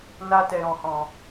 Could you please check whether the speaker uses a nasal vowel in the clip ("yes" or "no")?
yes